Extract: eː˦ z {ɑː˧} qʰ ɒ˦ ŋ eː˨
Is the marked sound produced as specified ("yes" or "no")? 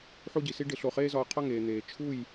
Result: no